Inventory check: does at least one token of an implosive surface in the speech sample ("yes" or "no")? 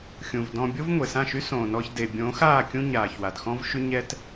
no